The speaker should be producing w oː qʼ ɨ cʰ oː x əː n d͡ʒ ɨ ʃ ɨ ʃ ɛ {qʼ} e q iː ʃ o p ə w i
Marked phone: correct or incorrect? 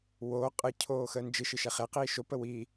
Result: incorrect